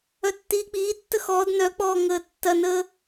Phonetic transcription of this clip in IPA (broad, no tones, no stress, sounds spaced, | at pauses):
œ tː iː k͡p iː tː ə x ɔː d n œ k͡p ɔː ŋ əː tː ɐ n əː